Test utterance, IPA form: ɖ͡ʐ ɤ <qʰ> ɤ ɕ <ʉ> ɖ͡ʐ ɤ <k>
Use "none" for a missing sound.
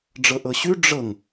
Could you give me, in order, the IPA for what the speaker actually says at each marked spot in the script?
ʔ, ʉ, ŋ

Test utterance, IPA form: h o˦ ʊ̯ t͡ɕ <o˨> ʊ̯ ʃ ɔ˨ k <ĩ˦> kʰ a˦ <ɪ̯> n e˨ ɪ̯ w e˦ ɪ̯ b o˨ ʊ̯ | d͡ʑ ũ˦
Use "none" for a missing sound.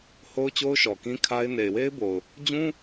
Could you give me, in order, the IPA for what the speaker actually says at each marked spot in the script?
o˦, ĩ˦, ɪ̯

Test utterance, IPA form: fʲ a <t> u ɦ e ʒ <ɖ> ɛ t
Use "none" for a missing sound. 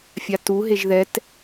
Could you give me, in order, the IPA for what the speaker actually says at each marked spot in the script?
t, ð

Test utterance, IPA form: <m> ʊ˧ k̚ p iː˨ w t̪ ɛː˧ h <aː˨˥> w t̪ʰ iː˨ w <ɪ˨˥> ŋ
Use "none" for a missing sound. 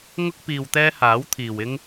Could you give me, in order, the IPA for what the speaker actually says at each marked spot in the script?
ŋ, aː˨˥, ɪ˥

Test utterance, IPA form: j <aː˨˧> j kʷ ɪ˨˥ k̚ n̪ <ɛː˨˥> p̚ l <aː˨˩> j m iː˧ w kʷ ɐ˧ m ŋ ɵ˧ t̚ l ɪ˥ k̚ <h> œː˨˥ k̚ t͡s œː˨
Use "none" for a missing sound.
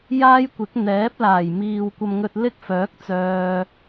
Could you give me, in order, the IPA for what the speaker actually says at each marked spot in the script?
aː˥, ɛː˨˥, aː˨˩, f

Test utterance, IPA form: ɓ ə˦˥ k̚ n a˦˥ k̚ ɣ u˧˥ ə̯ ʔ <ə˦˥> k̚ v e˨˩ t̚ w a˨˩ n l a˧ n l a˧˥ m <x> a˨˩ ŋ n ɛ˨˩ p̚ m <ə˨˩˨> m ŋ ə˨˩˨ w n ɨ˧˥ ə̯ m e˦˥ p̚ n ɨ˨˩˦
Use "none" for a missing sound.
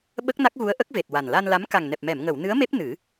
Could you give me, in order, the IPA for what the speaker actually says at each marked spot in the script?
ə˦˥, k, ɛ˨˩˨

